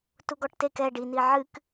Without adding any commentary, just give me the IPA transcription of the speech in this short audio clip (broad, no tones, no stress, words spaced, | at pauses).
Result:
tuɡɔʈtek ɛ ɖini ʕɨk